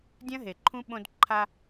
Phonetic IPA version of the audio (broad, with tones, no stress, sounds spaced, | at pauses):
dʲ ɐ̃˦ ɦ e˨ ǃʰ ũ˦ ɓ õ˦ d ǃʰ a˦